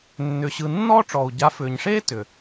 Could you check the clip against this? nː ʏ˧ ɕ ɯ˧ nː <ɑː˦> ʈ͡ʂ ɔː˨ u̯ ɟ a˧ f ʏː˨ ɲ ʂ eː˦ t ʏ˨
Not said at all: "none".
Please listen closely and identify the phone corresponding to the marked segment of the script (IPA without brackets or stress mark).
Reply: ɔː˦